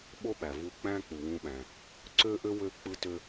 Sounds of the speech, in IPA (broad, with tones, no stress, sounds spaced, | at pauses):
ɓ o˥ ɓ æ˩ v u˧ k͡p æ̃˥ k͡p u˩ w ũ˧ ɓ æ̃˩ | ǀ ø˥ ʔ ø˥ w ø˥ k͡p ɯ˥ t ø˥